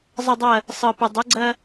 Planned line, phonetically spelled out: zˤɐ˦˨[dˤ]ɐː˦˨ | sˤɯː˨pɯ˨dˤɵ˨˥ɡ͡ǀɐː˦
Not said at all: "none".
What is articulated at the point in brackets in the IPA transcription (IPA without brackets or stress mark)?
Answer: dˤ